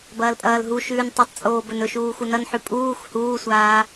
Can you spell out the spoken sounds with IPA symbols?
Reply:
b ɐː l pʼ ɐː l ɦ u ʃ ʉː n tˤ ɵ tˤ t͡sʼ oː b ɵ n ɵ ʃ uː x u n ɐ n ħ ʉ pʼ uː x h uː sʷ aː

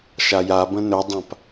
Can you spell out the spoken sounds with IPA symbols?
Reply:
ʃ a j a b ə̃ n ɵ dˤ ã p

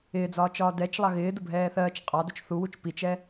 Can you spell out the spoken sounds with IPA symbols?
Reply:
ɪː d͡z ɒː t͡ʃ ɒː d ɛ t͡ʃ lˠ ɑ ɣ ɪː d ʊ bʱ ɛː θ ɜː t͡ʃ qʼ ɑ d ʊ t͡ʃ θ u w u t͡ʃ p i t͡ʃ ɛ

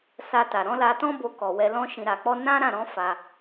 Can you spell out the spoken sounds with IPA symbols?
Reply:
s a˧ t a˨ ɾ ɔ̃˨˦ l a˧ t ɔ̃˦ b o˧ k ɔ˨ w ɛ˧ l ɔ̃˦ ʃ ĩ˧ ɾ a˧ k͡p ɔ˦ n ã˦ ɾ ã˦˨ ɾ ɔ̃˨˦ f a˧

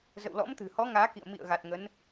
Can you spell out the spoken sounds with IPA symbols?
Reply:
z ə̰˧˨ w l ɔ̰˧˥ m t̪ ɨ̤˨˩ h ɔ˨˦ ŋ aː˨˦ k ḭ˧˨ ə̯ m ḭ˧˨ ə̯ ɣ a˨˩ t̚ ŋ ə˨˦ n

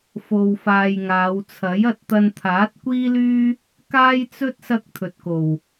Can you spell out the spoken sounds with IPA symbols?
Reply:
f o˧ w f aː˧ j ŋ aː˨˧ w t͡sʰ ɐ˨˥ j ɐ˧ t̚ t̪ ɐ˧ n t̪ʰ aː˨˥ t̚ kʷ iː˥ l yː˥ | k aː˥ j t͡s ɵ˥ t̚ s ɐ˥ k̚ t̪ʰ ɵ˨ t̚ k o˨˩ w

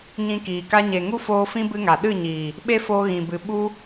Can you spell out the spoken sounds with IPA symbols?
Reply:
ɲ ĩ˧ k iː˨ k a˦ ɲ e˨ ŋ u˦ f oː˧ f ĩ˦ b ɨ˦ ŋ a˨ ɗ ɨ˦˨ ɲ iː˨ | ɓ e˦ f oː˧ ɣ ĩ˨ b ɨ˨ ɓ u˦

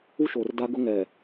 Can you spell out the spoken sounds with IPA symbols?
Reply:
u˦ ʃ oː˨ r d a˦ ɡ ʊ˦ ŋ ɛ˨

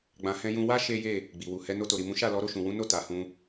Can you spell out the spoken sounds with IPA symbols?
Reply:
ɡ͡b ã˧ h ɛ̃˧ j ũ˧ w a˦ ʃ e˦ j e˦˨ | ɡ͡b i˨ w u˨ h ɛ˧ n o˧ t o˨ ɾ i˨ m ũ˨˦ ʃ a˦˨ l ɔ˨˦ ɾ o˧ ʃ ũ˨ w ũ˨˦ n o˦˨ t a˨ h ũ˧

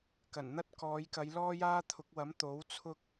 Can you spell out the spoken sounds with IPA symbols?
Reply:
k ɐ˨˩ n n̪ ɐ˥ t̚ k ɔː˨˧ j k ɐ˨˧ j l ɔː˥ j aː˥ t̪ʰ ʊ˨˥ k̚ w ɐ˨˥ m t̪ o˨˥ w t͡sʰ ʊ˥ k̚

